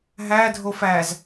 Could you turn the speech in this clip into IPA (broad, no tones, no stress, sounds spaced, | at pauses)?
ɦ æ dʱ o f æ z